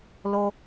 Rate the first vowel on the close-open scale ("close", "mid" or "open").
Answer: mid